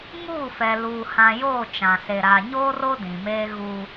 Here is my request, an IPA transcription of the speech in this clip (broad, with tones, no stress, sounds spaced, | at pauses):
ŋ uː˦˨ f ɛ˨ l uː˨ h ã˨ j oː˦˨ t͡ʃ ã˨ s e˨ ɾ aː˨ ɲ oː˦ r o˦ d ĩ˨ m eː˦ ɣ uː˦